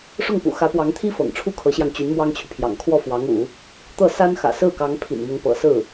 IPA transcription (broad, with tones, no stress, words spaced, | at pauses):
ʂʊ˥˩ŋpṵ˨˩ xä˧˥pwɑ˧˥ŋt̪ʰi˥ fɤ̰˨˩ŋʈ͡ʂʰu˥ kʰɤ˧˥ɕjɑ˧ŋt͡ɕy˧˥n mwɑ˥ŋt͡ɕʰy˨pʰjɑ̰˨˩ŋ kʰwɔ˥˩fwɑ˧˥ŋṵ˨˩˦ | t̪ɤ˥˩sa˥n xä̰˨˩sɹ̩˥˩kɑ˧˥ŋ pʰḭ˨˩nmʊ˧˥ŋpɤ̰˨˩sɹ̩˥˩